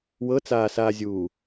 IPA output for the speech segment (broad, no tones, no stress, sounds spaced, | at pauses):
w ɤ t͡s aː s aː zʲ uː